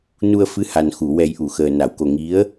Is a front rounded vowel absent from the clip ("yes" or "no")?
yes